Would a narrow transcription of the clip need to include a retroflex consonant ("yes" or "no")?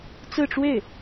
yes